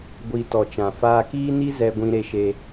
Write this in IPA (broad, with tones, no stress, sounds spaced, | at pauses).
ɡʷ i˨ t ɔ˨ t͡ʃ ã˨ f aː˧ k iː˦ n i˦ z ɛ˧ ɡʷ ĩ˧ ɾ e˧ ʃ e˧